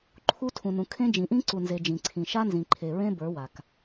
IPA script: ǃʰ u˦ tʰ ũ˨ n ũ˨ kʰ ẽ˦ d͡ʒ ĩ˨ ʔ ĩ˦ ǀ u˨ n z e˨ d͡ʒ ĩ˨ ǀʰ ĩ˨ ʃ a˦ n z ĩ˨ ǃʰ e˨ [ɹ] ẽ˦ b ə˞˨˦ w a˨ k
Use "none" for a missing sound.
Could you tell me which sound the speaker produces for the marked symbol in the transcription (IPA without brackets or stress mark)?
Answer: ɹ